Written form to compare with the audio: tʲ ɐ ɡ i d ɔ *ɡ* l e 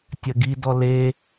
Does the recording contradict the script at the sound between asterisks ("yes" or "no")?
yes